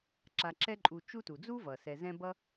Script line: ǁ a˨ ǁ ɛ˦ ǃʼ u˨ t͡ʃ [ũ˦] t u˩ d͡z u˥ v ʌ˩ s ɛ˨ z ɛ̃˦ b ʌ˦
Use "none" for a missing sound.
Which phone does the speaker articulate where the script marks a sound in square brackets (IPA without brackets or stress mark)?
u˦